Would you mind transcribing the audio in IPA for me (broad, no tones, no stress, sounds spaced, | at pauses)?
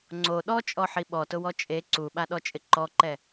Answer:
ŋ͡ǀ o ɗ ɔ t͡ʃʼ ɔ ħ i ɓ ɔ t ʊ w ɔ t͡ʃʼ e ǀ u ɓ a ɗ ɔ t͡ʃʼ ɪ ǃ ɔ ǃ ɛ